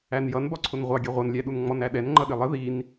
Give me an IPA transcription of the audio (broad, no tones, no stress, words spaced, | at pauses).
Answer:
ænjʌn bɒǀʰʊnʁʷɑ ɡʲɛʁʷʌnlʲæɗun ŋ͡mɔnæɗɛn ŋ͡ǃʌɗɪlˠə ðin